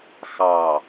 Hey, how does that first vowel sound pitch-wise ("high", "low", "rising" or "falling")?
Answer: low